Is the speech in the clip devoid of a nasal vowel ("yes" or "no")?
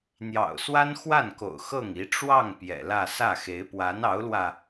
yes